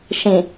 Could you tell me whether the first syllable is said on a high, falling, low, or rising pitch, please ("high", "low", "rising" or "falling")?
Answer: low